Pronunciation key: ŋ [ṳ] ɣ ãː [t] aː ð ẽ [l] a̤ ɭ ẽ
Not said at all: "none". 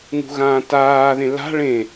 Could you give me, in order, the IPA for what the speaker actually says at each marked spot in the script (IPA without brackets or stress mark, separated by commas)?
ṳ, t, l